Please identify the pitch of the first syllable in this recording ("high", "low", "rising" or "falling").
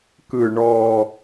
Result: low